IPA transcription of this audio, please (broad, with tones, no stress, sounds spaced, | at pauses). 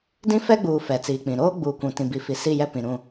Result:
d ĩ˦ f ɛ˦ ɡ͡b uː˨ f ɛ˨ t͡s iː˨ k͡p ĩ˨ ɾ oː˦ ɡ͡b uː˨ kʷ ũ˨ t ĩ˨ b i˨˦ f i˨ s i˦˨ j ɛ˦ p ĩ˨ ɾ ũ˦˨